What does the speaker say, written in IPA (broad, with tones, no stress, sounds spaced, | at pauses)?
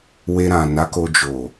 w e˧ ɾ ã˨ n a˨˦ k o˧ d͡ʒ o˨